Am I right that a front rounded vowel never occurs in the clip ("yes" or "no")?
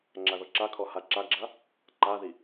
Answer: yes